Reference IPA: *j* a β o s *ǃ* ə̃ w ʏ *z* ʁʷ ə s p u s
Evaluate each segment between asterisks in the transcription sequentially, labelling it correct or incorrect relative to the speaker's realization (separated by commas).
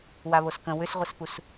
incorrect, incorrect, incorrect